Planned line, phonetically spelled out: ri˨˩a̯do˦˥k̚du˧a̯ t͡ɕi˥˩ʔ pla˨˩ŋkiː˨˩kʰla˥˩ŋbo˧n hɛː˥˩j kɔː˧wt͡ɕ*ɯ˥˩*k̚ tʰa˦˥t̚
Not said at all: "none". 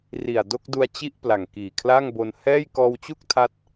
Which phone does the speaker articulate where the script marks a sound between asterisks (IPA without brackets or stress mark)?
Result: u˥˩